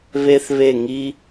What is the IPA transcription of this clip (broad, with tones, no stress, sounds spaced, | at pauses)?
β e˥ θ β e˥˧ ŋ i˥